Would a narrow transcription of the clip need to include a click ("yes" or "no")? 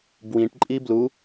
yes